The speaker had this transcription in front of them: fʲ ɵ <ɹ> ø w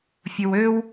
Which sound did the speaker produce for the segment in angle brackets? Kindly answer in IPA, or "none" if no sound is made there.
w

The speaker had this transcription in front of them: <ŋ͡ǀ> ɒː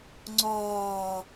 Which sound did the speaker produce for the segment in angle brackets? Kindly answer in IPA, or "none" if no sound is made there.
ŋ͡ǀ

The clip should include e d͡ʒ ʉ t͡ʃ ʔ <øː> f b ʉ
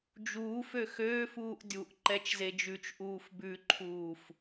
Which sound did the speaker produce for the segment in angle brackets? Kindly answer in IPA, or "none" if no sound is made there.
uː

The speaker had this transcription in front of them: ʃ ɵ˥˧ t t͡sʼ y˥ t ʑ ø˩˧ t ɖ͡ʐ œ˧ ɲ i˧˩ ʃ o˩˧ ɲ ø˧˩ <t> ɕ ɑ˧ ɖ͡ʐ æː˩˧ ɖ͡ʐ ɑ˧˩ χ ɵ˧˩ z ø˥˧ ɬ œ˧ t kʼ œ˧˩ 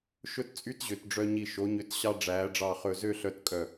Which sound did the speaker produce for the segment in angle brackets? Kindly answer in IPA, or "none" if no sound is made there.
t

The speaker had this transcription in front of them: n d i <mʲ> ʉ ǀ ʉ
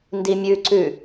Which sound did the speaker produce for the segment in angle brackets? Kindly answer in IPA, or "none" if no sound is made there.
mʲ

